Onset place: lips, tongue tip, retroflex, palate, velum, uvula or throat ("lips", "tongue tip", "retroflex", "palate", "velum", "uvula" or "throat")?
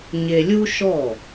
palate